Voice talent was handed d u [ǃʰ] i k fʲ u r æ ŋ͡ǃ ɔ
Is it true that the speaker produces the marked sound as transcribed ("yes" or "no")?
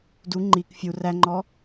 no